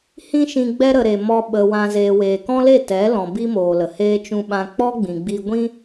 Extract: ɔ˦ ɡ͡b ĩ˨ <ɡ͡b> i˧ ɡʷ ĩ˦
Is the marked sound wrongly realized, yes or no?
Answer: no